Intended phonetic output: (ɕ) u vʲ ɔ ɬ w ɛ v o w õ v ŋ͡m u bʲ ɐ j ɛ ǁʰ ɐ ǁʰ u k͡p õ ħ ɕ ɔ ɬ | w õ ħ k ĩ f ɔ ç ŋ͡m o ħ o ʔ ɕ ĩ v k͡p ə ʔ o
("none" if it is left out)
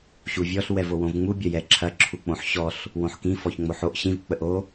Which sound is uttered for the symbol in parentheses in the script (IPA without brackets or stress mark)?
ɕ